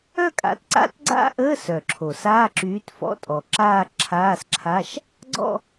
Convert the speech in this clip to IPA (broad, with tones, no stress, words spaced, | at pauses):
œ˥˧kʼa̰˨˥tǀa̰˧˥˧t ɡ͡ǀa̰˥˧ʔəː˧˥˧ sœ˨˩ǁʰo˨˩ saː˧˥˧ǁyː˨˥tfɔ̰˧˥˧tʼɔ˨˩ ǁaː˥˧ǁʰaː˧˥˧sǁʰa˧˥˧ʃ | ɡ͡ǀɔ̰˥˧